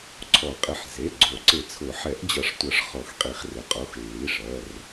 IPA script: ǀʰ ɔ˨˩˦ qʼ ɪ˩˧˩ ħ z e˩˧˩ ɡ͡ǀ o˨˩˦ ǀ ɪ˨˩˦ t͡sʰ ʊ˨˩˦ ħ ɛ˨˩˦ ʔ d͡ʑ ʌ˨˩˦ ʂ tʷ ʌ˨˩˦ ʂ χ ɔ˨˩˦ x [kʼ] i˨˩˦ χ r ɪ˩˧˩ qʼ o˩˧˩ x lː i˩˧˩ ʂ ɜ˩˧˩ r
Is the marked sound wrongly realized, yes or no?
yes